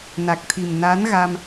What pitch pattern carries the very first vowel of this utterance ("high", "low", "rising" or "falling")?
low